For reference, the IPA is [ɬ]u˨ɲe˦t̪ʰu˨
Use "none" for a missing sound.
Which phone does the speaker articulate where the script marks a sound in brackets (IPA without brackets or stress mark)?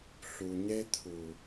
ɬ